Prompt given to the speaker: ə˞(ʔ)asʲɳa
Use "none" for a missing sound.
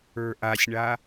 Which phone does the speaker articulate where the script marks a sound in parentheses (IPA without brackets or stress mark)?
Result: ʔ